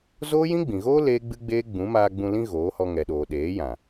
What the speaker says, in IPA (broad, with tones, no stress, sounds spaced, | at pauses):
z oː˦ j ĩ˦ ɡ͡b ĩ˨ ɣ oː˦ l eː˦ ɡ͡b ɨ˦ ɡ͡b eː˦ ɡ͡b ũ˨˦ m aː˧ ɡ͡b ũ˧ l ĩ˦ ɣ oː˨˦ h ɔ˧ ŋ ɛ˨ ɗ oː˨ ɗ eː˨˦ j ã˨